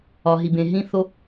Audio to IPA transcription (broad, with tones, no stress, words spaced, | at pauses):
ɒ˩ ɦi˩bẽ˩ ɦĩ˥θo˥